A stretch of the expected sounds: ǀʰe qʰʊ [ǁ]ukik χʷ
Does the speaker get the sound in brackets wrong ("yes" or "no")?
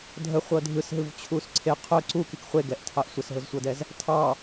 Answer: yes